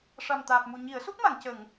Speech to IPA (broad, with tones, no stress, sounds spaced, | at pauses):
ʂ a˨˩ m t̪ aː˨˩ p̚ m u˨˩ ɲ i˨˩˦ ə̯ s u˦˥ k̚ m a˨˩˨ ŋ c ə˨˩˨ ŋ